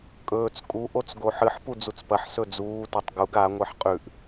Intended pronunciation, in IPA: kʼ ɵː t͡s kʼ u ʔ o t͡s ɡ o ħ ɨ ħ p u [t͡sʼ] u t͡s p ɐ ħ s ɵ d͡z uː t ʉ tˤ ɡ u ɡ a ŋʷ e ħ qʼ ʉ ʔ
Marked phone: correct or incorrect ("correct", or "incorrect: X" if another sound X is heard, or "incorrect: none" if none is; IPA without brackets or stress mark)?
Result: incorrect: d͡z